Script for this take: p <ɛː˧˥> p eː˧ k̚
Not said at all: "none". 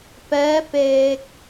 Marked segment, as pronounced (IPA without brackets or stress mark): ɛː˧˥